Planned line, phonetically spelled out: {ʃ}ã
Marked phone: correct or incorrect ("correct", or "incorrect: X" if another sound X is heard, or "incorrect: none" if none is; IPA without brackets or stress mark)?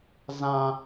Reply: incorrect: z